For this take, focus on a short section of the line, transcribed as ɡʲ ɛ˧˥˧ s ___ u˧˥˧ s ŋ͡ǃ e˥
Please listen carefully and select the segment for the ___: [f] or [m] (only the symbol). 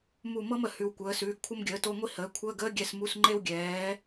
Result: m